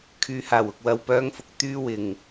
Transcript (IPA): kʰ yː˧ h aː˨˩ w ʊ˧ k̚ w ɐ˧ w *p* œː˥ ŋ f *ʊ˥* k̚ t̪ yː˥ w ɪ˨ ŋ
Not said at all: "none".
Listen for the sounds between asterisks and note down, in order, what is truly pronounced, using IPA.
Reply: p, ʊ˥

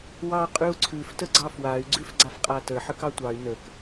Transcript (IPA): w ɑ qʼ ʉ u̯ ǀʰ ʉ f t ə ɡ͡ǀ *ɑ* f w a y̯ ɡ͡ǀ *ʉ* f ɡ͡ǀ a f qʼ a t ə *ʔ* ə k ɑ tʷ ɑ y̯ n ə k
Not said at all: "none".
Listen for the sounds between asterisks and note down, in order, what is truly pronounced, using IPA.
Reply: ɑ, ʉ, ħ

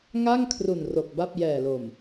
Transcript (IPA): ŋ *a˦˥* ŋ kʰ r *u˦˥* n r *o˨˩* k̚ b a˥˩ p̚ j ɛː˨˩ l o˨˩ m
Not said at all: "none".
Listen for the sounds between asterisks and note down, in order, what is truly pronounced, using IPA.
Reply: a˥˩, u˨˩, o˨˩

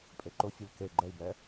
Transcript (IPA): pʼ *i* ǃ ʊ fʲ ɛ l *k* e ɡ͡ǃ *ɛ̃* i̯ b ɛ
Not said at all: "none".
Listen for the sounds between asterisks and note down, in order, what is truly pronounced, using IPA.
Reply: e, k, ɛ

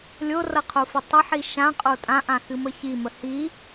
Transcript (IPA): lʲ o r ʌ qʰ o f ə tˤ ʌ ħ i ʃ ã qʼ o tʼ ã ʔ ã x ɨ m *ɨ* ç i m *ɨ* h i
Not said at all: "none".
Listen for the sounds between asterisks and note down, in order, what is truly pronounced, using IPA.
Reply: ə, ə

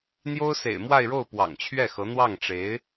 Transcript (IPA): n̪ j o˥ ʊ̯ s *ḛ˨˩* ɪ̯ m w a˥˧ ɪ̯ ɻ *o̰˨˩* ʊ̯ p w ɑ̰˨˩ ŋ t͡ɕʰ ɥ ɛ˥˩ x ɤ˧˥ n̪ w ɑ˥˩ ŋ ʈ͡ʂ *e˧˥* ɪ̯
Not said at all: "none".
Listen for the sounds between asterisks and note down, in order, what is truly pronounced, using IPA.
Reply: ḛ˨˩, o˥˩, e˧˥

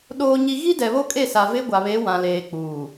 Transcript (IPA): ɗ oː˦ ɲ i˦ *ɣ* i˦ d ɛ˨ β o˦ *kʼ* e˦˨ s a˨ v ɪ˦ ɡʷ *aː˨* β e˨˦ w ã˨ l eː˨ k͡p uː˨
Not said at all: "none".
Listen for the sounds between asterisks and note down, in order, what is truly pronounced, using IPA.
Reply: ɣ, kʼ, a˨

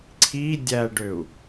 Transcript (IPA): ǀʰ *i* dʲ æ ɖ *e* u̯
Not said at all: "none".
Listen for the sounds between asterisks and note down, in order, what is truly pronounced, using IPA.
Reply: i, ø

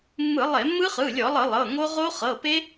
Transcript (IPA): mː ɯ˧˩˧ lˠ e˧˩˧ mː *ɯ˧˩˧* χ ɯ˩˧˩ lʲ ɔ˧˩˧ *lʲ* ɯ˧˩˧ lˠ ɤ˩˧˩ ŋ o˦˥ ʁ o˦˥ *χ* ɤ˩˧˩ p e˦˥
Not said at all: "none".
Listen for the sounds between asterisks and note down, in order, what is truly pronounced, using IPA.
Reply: ɯ˦˥, lˠ, χ

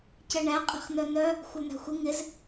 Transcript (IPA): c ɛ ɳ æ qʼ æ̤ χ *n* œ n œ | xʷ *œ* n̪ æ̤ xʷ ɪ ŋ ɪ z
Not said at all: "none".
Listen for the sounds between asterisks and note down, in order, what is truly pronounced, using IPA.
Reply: n, œ

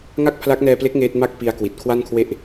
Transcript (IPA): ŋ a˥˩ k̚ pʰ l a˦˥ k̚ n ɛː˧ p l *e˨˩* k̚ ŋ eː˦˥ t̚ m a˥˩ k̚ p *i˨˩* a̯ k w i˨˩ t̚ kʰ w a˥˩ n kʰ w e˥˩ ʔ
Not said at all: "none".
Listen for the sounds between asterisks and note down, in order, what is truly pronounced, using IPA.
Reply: e˦˥, i˧

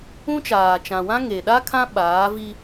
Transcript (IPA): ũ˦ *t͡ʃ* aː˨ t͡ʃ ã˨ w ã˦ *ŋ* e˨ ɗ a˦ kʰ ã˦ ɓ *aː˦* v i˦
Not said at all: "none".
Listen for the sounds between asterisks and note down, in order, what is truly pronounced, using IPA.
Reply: t͡ʃ, ŋ, aː˨˦

